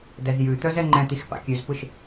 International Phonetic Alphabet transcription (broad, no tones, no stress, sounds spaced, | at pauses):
d ɛ z j ʉ t̪ œ z ɛ ŋ͡ǃ ɛ̃ t̪ i x p a̰ kʲ ʉ z p ɯ ʃ